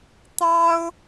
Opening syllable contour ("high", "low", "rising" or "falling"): high